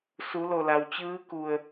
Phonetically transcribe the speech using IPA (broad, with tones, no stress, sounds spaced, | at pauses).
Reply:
s u˩˧ l o˧˩ l a˩ w t͡ɕ ɯː˧˥ k u˧˩ ə̯